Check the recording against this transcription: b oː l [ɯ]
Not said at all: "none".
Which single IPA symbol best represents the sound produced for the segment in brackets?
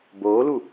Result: u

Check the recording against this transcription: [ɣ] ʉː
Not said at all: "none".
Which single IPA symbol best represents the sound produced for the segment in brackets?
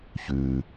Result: ç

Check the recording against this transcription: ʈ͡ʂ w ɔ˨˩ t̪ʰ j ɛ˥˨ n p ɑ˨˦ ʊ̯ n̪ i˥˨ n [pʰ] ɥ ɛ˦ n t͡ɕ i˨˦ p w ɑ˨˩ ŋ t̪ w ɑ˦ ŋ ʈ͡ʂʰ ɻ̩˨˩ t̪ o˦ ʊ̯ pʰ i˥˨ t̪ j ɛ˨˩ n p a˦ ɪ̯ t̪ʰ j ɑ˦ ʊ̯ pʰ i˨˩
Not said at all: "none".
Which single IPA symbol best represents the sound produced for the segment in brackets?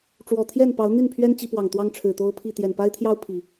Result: pʰ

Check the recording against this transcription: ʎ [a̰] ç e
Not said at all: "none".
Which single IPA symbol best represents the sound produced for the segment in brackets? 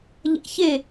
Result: a̰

